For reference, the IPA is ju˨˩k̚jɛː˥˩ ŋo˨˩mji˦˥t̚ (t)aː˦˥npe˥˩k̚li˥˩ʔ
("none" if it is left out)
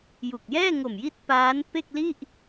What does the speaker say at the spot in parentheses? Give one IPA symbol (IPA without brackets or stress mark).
p